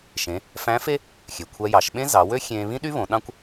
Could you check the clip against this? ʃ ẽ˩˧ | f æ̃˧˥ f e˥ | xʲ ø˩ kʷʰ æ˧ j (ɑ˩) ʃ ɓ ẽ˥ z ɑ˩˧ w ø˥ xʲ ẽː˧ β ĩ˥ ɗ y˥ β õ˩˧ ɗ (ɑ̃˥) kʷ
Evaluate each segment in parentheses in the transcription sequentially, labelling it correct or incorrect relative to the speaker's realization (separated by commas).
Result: incorrect, correct